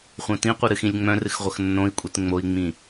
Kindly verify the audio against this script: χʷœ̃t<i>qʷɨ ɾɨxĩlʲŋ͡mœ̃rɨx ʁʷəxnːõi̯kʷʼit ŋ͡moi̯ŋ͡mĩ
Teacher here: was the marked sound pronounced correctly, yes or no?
no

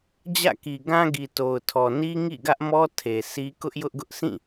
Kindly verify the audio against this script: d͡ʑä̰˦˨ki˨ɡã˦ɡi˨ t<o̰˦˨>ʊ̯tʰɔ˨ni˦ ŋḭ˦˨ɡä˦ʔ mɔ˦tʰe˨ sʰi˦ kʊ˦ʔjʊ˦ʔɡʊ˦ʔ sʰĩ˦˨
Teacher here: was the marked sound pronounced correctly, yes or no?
no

